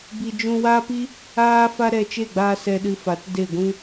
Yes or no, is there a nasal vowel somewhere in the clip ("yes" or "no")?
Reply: yes